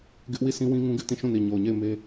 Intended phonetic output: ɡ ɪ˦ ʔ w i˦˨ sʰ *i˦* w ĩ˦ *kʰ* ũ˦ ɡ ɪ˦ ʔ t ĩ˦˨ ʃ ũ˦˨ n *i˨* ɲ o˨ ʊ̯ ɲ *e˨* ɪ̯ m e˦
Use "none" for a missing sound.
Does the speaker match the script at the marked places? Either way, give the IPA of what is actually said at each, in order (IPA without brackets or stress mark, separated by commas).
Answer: ĩ˦, ŋ, i˨, e˦˨